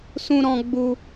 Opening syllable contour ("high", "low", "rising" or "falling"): high